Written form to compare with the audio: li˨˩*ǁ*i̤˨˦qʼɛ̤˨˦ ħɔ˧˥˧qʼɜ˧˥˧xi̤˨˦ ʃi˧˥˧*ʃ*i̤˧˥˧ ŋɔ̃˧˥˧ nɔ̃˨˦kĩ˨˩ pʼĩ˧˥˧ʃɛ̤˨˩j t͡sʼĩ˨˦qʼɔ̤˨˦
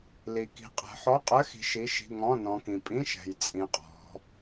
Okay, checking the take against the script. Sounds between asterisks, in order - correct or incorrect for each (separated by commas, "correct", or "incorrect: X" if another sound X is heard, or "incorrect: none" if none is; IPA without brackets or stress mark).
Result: incorrect: k, correct